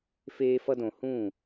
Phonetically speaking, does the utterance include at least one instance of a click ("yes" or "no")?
no